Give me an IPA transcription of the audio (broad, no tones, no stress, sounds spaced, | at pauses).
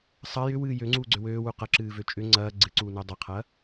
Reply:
sˤ ɐ j ʏ w ɨː j ø ŋ͡ǀ uː ɡ͡ǀ ʏ w øː w u q ɐ ǁ ɨː v ø t͡ʃʼ ʏ ŋ͡ǀ ɐː ɡ͡ǀ ɨ ǀ uː n ʏː dˤ ɐ qʰ ɐː